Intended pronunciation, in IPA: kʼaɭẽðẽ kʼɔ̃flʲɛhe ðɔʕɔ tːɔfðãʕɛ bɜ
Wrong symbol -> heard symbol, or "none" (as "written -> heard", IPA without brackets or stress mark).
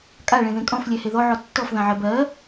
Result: none